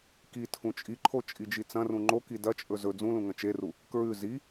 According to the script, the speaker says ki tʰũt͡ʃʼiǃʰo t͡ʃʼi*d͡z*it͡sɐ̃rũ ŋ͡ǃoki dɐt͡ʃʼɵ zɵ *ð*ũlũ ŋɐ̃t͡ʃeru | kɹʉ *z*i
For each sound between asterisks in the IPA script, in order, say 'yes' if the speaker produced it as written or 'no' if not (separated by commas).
no, no, yes